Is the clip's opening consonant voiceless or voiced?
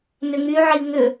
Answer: voiced